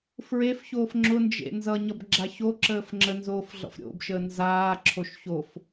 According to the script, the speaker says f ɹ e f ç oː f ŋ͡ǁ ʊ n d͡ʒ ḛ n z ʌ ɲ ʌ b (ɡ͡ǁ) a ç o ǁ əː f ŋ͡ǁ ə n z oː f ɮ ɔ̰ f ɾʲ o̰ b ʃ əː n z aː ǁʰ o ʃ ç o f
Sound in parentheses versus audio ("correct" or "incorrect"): correct